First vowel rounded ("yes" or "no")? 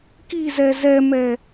no